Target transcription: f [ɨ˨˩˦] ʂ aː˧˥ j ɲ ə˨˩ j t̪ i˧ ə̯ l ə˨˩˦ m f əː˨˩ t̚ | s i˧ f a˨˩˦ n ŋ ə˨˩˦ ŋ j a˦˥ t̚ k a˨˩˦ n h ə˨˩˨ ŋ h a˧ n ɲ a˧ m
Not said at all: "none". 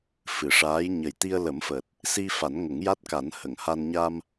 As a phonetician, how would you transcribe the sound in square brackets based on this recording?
ɨ˨˩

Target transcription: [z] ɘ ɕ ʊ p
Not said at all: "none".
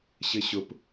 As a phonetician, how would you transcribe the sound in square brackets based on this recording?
ɕ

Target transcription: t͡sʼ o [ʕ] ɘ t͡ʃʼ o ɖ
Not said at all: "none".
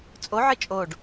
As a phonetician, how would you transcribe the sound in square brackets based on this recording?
ʕ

